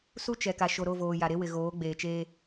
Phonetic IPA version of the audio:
s u˦ t͡ʃ ɛ˨ k a˨ ʃ o˨ ɾ o˦˨ v oː˨ j a˨ ɾ e˦ w ɪ˨ ɣ oː˨˦ ɡ͡b eː˨ t͡ʃ eː˦

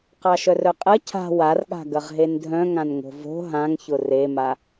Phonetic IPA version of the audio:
q ɑ ʃ œ r œ qʼ ɐ cʰ a̤ w a r ɠ a̤ ɡ ɐ ʁ ɦ e n dʱ œ̃ ŋ ã n ŋ o̤ v o̤ ɦ ã ŋ ç ʊ r e m a

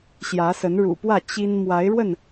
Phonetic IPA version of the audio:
ɕ j ä˨˦ s ə˨˦ n ɻ ṵ˨˩ p w ä˥˨ t͡ɕ i˦ n m w a˨˦ ɪ̯ ɻ w ə˥˨ n

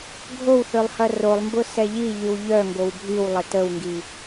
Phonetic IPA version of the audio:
ɡʱ o w θ ø lˠ h ɐ r o lˠ m b ʊ s ɛ ʎ i ʎ y w ʎ œ ŋ ɡ o w bʱ y w lˠ ɪ t ə w ŋ ɡ i

